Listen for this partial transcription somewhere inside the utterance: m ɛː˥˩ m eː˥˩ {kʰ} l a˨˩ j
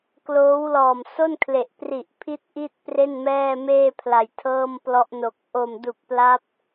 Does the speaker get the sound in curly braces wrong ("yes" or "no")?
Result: yes